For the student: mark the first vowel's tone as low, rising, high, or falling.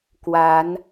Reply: rising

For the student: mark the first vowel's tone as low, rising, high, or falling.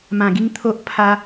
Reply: low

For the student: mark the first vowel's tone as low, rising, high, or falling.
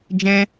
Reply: high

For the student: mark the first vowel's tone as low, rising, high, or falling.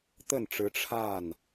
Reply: falling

